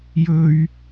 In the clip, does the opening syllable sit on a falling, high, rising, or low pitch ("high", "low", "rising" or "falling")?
high